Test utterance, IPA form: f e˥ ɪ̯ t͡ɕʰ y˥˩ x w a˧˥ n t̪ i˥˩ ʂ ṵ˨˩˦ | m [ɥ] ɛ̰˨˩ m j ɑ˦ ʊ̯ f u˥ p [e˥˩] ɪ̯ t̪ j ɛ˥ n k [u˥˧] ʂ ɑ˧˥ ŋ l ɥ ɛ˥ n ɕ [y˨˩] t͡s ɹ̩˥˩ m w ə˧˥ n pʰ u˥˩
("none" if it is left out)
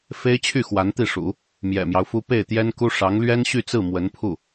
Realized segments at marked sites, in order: j, e˥˩, u˥, y˥˧

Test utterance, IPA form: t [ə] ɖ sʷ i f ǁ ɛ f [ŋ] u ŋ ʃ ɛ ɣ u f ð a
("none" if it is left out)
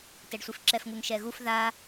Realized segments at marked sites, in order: ɛ, ŋ

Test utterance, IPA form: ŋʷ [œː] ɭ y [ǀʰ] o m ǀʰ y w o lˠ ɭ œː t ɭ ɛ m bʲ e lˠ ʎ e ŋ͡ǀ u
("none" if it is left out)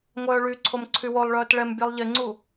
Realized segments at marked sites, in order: œː, ǀʰ

